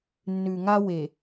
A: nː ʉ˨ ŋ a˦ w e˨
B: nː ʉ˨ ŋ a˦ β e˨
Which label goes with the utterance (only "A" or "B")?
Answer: A